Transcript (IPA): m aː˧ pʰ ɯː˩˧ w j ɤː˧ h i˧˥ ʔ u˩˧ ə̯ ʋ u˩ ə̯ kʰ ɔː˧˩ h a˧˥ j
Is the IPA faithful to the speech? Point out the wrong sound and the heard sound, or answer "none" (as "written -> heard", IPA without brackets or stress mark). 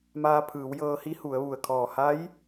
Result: ʔ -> h